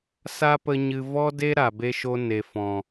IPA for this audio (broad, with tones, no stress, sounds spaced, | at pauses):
s a˦ p ə˧ ɲ ɨ˨ v ɔ˦ d e˦ ɾ a˨ b e˦ ʃ o˦ n e˨ f ɔ̃˨